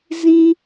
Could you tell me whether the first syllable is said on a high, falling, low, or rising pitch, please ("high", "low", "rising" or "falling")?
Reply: high